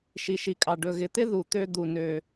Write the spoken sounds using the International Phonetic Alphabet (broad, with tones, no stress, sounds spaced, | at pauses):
ʃ i˩ ʃ i˩ kʼ ɑ˩ ɖ ɵ˨ ɣ ɪ˨ t̪ ɪ˦ ð u˩ t̪ ø˨ d̪ u˩ n ø˩